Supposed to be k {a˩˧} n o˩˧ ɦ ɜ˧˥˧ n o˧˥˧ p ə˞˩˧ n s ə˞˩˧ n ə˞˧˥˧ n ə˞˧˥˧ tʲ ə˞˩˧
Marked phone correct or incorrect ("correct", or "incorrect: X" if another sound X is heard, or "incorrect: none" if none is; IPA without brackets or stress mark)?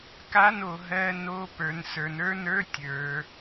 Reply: incorrect: a˧˥˧